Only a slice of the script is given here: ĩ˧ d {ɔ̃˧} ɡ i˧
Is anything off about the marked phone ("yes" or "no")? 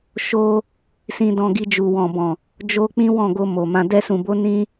no